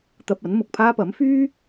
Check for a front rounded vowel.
present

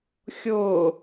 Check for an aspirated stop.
absent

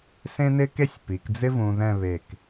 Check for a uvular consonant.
absent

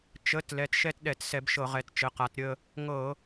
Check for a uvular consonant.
present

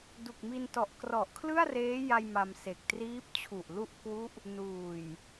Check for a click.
absent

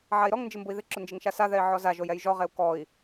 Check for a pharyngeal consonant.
present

